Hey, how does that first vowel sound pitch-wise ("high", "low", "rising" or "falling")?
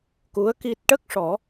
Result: rising